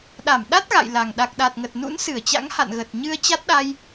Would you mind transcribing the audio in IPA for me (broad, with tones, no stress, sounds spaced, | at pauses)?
ɗ a˧˩ m ɗ a˦˥ t̚ ɣ a̰˧˨ j l a˨˩ ŋ ɗ a˨˩ k̚ ɗ a˨˩ t̚ ŋ ə˨˩ t̚ n ṵ˧˥ n s ɨ˧˩ ə̯ t͡ɕ a̰˧˥ ŋ h a̰˧˨ n ɣ ə˨˩ t̚ ɲ ɨ˧ ə̯ t͡ɕ a˦˥ t̚ ɗ a˧ j